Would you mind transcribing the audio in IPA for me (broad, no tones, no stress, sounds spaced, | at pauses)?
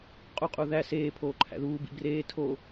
qʼ u qʼ u ð æ s eː pʰ oː ǃʰ æ̰ ð uː b ḭ b r eː tʰ o